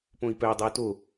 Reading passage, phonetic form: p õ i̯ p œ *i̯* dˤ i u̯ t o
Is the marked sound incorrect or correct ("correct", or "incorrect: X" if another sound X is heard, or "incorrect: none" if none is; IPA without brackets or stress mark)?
correct